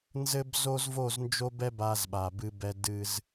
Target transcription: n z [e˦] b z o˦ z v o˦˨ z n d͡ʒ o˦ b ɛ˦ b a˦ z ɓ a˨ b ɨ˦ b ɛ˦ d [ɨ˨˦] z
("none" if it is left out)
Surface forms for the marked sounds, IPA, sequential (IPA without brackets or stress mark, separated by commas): ɘ˦, ɨ˦